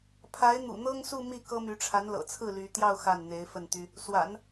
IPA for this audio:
pʰa˧˥ɪ̯n̪ṵ˨˩n̪ɤ˥ŋsu˥˧ mi˥˩kɤ˥my˧˥ ʈ͡ʂʰa˧˥nlɤ̰˨˩t͡sʰɹ̩˥˩ ly˧˥ t̪jɑ˥˧ʊ̯ xa˥˩nn̪e˧˥ɪ̯ fə˥˩nt̪y˥ | swa̰˨˩˦n

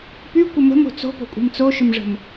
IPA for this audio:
pykʷə mə̤mo̤ t͡so̤po̤kʷʼi̤m t͡soʃʏmʐə̤m

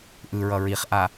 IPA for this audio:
ʔɯɹʌ ɹiχʔa

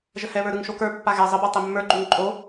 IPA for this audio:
ʒəhɛβə˞ɾɯŋ ʃokə˞pːa ɣɛ zˤəbə˞ tˤemːə˞ɡ͡ǃuŋ ǃʼo

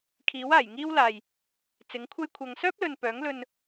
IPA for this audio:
kʰiː˨˥waː˨˩jŋiː˥wlaː˨j | t͡sɪ˨˥ŋkʷʰɐ˥jkʷʰɐ˧ŋ sœː˥p̚lɵ˨n pœː˨˥ŋlɵ˧n

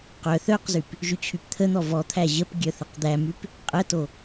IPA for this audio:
qœ θœqzyp | ʒyt͡ɕʰypt̪ʰən̪ɔ vɔt̪ʰæ ʑəp ɡʲœθəqd̪æmyp | qʼəto

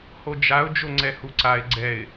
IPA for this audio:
hod͡ʒaʊ̯ d͡ʒoŋ͡ǀɛhuǀaɪ̯ ɡ͡ǀɛɪ̯

